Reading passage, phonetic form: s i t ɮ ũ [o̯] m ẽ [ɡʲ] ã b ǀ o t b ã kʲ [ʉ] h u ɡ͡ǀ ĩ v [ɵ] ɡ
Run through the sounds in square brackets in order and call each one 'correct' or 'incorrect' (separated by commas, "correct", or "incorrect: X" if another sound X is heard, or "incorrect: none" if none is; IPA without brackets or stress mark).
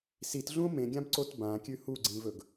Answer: correct, correct, correct, correct